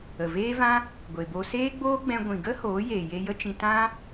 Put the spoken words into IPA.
ə˨ v eː˦ v ã˦ | ɡʷ e˨ b o˧ s eː˦ ɡ͡b oː˦ ɡ͡b ɛ̃˧ ɡʷ ĩ˨ ɡ ə˦ h oː˨˦ j eː˨ j e˧ j ə˦ t͡ʃ ĩ˧ t ã˦

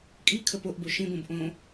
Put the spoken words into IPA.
kʼ i kʰ ə p o ʔ b o ʃ ĩ b õ b ʔ õ

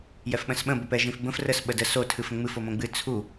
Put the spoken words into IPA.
j ɛ f ɓ ə̃ s ɓ ə̃ b ə p ɛ ʒ ĩ f b ə̃ f r ə s ɓ ə d ə s o tʰ ɨ f ə̃ ŋ͡m ɨ f o m õ ɡ͡b ɨ t͡sʰ u

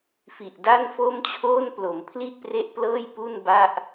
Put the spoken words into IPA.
f i˨˩ ʔ d a˥˩ n f o˥˩ m t͡ɕʰ oː˥˩ n p l o˩˦ m pʰ l i˥˩ ʔ p r e˦˥ ʔ p l ɤː˥˩ j p u˥˩ n b a˥˩ ʔ

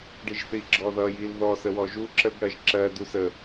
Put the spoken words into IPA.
ɖ i ʒ θ i ɡ͡ǁ ɔ ð ʌ j i l ð ɔ s ə w ɔ ʒ u ǁ ə ɡ ɽ ɜ ʒ ǁ ɜ d u s ə

